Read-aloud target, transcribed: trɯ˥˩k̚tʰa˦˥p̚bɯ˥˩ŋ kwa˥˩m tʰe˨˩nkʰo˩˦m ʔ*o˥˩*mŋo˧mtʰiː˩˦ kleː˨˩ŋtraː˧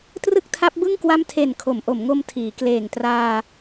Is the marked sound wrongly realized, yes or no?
yes